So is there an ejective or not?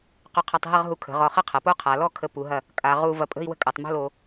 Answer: yes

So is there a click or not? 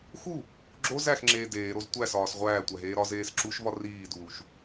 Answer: yes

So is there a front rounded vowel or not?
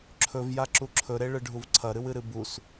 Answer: no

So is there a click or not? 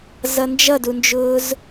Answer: no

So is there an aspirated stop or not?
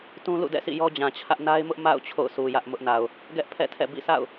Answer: yes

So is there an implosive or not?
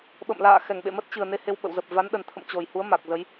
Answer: yes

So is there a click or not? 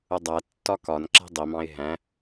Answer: yes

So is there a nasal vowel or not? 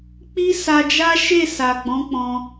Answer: yes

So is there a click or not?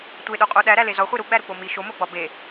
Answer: no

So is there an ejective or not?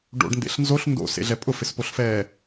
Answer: yes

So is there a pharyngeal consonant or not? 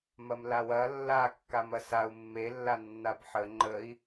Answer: yes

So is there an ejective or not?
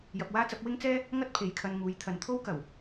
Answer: no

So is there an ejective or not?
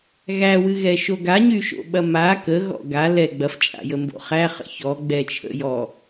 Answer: yes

